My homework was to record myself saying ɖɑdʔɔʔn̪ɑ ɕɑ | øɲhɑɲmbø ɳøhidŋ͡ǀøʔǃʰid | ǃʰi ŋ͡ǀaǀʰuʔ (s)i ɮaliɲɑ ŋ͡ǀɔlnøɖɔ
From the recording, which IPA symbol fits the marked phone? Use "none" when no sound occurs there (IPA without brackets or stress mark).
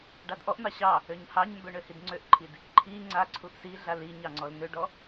s